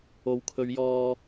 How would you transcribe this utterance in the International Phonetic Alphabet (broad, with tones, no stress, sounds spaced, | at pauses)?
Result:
o˨ w kʰ ɵ˨˧ ɥ j ɔː˨